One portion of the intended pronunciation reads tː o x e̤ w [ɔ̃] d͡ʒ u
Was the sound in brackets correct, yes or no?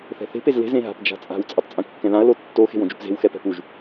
no